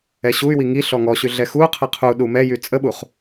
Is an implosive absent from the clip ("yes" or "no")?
no